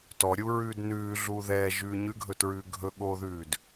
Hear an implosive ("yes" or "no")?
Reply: yes